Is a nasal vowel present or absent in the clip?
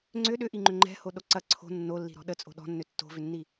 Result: absent